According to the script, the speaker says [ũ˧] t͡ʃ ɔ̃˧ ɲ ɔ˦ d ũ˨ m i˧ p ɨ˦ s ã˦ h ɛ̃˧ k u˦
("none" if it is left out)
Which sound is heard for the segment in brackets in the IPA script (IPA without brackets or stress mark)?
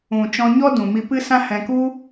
ũ˨